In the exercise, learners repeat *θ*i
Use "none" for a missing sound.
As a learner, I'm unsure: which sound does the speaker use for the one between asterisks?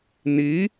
n̪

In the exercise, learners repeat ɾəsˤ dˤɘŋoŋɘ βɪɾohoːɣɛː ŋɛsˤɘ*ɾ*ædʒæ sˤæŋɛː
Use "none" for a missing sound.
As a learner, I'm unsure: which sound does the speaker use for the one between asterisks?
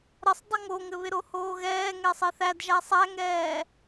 θ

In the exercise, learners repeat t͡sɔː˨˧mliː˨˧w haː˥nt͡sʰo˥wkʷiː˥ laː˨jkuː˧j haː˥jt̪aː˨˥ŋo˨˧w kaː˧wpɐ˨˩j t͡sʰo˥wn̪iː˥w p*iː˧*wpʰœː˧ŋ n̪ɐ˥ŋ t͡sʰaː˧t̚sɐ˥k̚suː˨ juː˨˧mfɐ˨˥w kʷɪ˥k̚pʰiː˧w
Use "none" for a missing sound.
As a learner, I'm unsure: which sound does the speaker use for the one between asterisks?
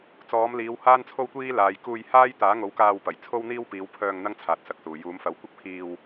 iː˨˧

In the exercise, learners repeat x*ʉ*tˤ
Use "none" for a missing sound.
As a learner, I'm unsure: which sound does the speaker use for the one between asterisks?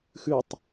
ʉ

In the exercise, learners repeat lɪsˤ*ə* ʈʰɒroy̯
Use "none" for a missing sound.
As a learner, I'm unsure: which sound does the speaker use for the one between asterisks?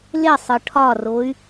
ɯ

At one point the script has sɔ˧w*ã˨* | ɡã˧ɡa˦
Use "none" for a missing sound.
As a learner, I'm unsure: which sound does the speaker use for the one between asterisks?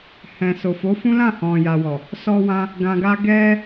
ã˧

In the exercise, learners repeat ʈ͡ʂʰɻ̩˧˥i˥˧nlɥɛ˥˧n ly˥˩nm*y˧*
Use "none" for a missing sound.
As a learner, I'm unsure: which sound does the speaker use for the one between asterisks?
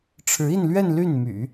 y̰˨˩˦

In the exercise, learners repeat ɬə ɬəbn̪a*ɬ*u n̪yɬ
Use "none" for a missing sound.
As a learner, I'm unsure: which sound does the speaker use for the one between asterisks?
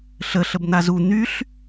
z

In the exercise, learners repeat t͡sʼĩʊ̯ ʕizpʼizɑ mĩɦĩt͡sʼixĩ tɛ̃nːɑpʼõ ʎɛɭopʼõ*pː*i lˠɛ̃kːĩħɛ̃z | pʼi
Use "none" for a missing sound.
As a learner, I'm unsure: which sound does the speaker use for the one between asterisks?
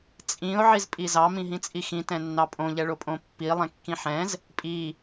pː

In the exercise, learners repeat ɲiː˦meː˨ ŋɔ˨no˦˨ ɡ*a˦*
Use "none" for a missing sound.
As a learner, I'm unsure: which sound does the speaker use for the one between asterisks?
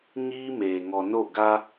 a˦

